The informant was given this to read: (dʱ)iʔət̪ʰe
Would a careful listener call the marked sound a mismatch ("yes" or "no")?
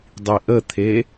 yes